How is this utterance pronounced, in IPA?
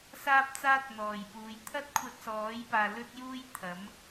s aː˥ p̚ t͡s aː˥ t̚ n̪ ɔː˨˩ j p uː˨ j t̪ʰ ɐ˥ t̚ kʷʰ ɐ˧ t̚ s ɔː˨˥ j p aː˨ l ɵ˥ t̚ j uː˥ j t̪ʰ ɐ˨˥ m

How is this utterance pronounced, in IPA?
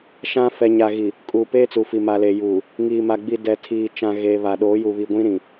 ʃ ã˦ f ɛ˨ ɲ a˨ ɣ i˨ | kʼ uː˨ p eː˦ t͡s u˨ f i˨ m a˨ l e˨ j uː˨ | ŋ iː˨ m a˨ ɡ͡b i˨ d ɛ˨ tʰ iː˨ t͡ʃ ã˨ ɣ eː˨ β a˨ ɗ oː˨˦ j u˨ β i˨ ɡʷ ĩ˦ ɾ ĩ˨

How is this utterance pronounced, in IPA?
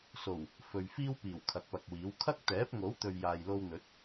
s o˨˩ w | f ɵ˨ ɥ f iː˥ w p iː˨˩ w kʰ ɐ˨˥ k̚ p ɐ˨ k̚ w iː˨˥ w kʰ ɐ˥ k̚ t̪ ɛː˨˥ p̚ ŋ o˨˥ w t̪ ɵ˨ ɥ j aː˨ j l o˧ w n̪ ɵ˨˥ t̚

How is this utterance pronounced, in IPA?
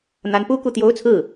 n̪ a˧˥ n p u˥ k u˥˩ t̪ j o˥ ʊ̯ t͡sʰ ɹ̩˥˩

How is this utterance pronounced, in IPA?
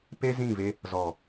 p e˦ z ĩ˦˨ v e˧ | z ɔ˨

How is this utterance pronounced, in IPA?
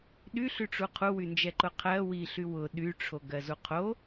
ɗ y ɬ y ʈ͡ʂ u qʰ u w y n d͡ʒ ɛ ǃ ʊ qʰ ɜ w i ɬ y w ʊ ɗ y ʈ͡ʂʰ o ɡ ɜ z u qʰ o

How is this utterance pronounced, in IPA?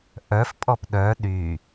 ʔ œ f pʼ ɔ p ɗ œ ɗ y

